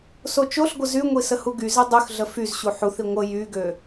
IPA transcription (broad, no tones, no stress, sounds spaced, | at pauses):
s o t͡ʃ o ɬ ɡʷ ə z y ŋʷ i s ə h u ɡ y z e dˤ y x ɮ ə f y z ɕ u ħ u θ i ŋʷ ə j y ɡ ø